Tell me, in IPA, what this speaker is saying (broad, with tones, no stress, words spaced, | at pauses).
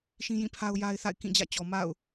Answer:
ʃĩ˦jĩ˦˨pʰa˦ʊ̯ ja˦ɪ̯ θa̰˦˨ɪ̯kĩ˦˨ d͡ʑä̰˦˨t͡ɕɔ˨ ma̰˦˨ʊ̯